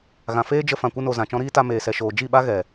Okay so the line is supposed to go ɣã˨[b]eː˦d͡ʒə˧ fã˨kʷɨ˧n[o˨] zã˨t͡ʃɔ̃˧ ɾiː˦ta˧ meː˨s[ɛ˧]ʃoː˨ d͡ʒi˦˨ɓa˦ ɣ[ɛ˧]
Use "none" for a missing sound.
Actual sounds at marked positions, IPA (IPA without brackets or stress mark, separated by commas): f, o˨, ɛ˨, ɛ˨